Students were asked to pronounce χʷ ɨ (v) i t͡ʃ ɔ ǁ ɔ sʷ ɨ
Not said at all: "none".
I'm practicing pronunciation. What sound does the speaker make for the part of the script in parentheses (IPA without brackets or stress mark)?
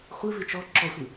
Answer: v